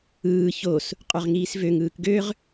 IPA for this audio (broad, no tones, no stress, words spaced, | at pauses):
ɯː ços | qʼøʁŋiːsvøŋɯːk ɡøʁ